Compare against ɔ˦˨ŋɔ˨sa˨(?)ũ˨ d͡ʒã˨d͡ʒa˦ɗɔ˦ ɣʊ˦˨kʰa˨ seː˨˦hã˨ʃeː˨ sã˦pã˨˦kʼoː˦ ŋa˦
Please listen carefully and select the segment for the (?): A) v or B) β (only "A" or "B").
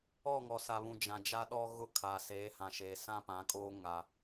B